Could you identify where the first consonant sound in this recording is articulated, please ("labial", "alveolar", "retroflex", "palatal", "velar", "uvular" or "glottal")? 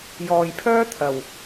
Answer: palatal